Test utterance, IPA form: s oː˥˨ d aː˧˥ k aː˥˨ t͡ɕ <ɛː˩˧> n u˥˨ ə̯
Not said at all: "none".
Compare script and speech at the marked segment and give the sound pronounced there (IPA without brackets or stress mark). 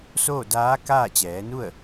ɛː˩˧